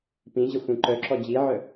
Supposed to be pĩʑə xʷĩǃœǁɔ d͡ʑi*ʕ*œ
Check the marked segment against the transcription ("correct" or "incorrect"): correct